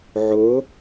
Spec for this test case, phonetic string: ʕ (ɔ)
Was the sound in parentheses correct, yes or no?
no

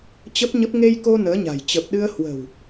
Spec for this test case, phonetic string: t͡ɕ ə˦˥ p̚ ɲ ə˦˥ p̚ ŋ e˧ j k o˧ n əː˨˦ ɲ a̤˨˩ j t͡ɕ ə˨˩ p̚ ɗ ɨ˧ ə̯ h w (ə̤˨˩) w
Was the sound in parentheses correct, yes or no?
yes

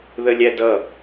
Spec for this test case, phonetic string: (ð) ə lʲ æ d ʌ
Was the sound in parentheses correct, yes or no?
yes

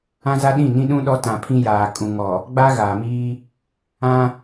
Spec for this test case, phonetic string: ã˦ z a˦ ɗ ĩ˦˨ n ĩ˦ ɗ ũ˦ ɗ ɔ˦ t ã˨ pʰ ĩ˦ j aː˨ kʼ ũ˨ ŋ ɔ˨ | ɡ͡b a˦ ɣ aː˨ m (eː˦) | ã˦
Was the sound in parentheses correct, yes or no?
no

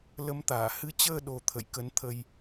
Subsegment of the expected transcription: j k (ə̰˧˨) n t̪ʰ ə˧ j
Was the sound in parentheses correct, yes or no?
no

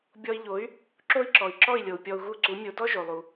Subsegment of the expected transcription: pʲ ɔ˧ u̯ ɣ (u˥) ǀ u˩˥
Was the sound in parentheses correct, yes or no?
no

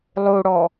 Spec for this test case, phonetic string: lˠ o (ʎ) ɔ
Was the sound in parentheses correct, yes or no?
no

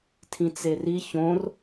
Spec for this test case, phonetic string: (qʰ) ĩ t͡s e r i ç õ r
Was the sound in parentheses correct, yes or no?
no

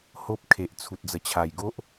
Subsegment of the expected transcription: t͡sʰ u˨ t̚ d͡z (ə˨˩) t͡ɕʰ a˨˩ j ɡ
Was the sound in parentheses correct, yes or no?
yes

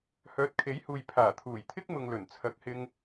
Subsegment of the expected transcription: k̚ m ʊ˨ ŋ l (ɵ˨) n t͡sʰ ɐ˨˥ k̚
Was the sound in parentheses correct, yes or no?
no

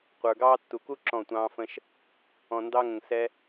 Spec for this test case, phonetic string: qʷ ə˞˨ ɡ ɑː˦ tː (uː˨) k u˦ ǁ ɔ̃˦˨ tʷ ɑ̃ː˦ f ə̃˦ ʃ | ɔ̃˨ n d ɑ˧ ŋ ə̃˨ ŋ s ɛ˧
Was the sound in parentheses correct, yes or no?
no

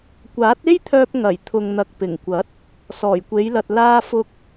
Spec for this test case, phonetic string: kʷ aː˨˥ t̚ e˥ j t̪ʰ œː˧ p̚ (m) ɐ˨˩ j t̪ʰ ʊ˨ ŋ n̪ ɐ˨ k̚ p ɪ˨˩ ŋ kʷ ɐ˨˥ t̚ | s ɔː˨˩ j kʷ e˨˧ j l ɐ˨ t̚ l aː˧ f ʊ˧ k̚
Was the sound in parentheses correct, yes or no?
no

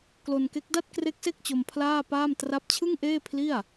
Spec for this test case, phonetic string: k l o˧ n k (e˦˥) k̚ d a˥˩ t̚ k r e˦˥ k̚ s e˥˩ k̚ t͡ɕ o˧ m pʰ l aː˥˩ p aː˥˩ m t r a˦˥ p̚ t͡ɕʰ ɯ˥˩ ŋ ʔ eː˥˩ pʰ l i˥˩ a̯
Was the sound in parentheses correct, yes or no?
yes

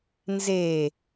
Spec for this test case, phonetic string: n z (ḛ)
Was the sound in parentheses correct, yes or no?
no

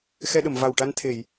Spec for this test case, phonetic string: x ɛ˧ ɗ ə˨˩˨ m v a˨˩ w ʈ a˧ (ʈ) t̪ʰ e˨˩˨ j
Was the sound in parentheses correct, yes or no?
no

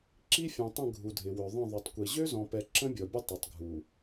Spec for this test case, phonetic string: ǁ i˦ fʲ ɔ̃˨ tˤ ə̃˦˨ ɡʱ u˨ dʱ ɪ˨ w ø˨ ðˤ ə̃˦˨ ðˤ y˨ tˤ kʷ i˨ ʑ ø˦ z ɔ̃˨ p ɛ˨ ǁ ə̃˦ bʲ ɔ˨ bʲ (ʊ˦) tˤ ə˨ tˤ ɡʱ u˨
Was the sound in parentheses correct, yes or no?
yes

